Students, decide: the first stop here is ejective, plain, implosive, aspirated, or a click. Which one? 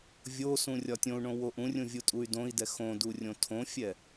plain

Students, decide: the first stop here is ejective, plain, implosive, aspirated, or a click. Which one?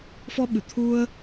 implosive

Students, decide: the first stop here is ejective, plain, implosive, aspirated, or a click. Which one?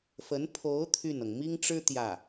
aspirated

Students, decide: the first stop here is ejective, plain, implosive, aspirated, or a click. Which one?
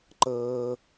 click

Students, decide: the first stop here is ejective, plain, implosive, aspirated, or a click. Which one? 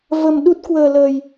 implosive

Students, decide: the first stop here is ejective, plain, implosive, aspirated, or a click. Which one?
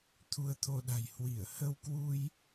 aspirated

